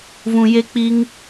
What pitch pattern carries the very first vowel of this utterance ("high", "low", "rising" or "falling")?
low